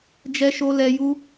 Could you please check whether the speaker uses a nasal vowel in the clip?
no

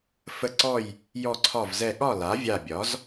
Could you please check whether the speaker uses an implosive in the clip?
yes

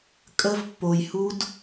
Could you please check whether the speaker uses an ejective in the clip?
yes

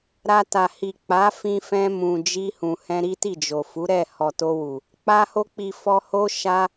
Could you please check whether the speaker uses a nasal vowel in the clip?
yes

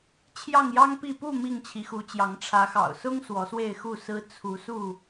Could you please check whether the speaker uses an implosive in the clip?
no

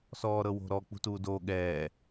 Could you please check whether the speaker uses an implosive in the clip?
yes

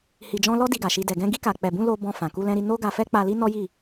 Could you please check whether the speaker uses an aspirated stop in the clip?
no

